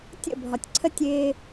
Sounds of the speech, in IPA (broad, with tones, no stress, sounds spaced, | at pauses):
tʲ ə̰˥˩ bʱ ɒ˩ tʲ ǀʰ ə˥˩ tʲ ɪː˧